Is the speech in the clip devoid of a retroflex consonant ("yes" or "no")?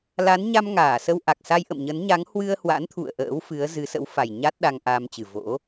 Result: yes